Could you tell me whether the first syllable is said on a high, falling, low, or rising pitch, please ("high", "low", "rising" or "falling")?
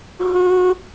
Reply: high